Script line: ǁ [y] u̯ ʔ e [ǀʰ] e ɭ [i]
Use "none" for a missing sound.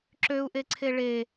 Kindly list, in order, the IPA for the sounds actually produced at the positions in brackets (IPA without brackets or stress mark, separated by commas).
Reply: ø, ǀʰ, e